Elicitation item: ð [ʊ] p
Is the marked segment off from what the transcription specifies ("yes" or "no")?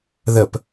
yes